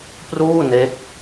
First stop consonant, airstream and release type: plain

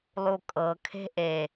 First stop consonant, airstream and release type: ejective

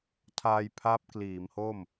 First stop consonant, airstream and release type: aspirated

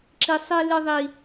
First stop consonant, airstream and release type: click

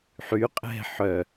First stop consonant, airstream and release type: ejective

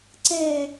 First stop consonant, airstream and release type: click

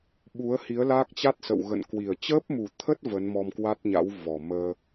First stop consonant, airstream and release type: implosive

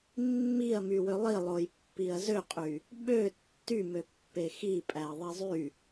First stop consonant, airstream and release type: plain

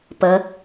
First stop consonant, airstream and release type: plain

